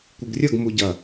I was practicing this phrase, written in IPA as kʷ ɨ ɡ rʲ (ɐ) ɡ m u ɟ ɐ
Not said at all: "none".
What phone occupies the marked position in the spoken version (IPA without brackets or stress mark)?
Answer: ɐ